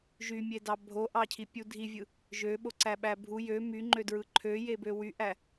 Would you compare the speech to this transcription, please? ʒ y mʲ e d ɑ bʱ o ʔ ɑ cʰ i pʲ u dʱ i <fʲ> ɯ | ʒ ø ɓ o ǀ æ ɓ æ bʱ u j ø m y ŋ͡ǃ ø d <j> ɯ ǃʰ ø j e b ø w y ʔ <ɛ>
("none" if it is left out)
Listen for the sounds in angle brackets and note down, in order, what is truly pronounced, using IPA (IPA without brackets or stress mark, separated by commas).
vʲ, ɹ, æ